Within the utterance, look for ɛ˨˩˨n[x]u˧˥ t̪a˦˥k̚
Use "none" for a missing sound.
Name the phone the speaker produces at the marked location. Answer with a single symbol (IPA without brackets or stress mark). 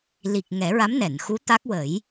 x